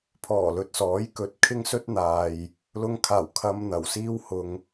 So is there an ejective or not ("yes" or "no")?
no